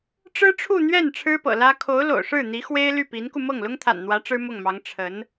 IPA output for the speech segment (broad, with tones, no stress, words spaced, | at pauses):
ʈ͡ʂɻ̩˥ʈ͡ʂʰu˥˧n̪ɥɛ˥˩n ʈ͡ʂʰɻ̩˥pɤ̰˨˩lä˥ kʰo˧˥ʊ̯lo̰˨˩ʊ̯ʂɻ̩˥˩ n̪i˧˥ xwe˥ɪ̯ly˥˩pi˧˥nku˧ mɤ˥˩ŋlʊ˥ŋt̪ʰa̰˨˩nn̪wä˧˥ ʈ͡ʂɻ̩˥mʊ˥˩ŋmɑ˧˥ŋ ʈ͡ʂʰə˧˥n